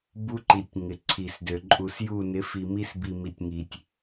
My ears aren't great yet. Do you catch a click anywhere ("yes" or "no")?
yes